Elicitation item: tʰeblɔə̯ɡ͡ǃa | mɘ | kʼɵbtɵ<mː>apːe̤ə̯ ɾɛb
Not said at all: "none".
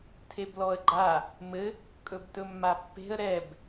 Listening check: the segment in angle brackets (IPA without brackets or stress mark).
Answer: mː